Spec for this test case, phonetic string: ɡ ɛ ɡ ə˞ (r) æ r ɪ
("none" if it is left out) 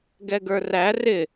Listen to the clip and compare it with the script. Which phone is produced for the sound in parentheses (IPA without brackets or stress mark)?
r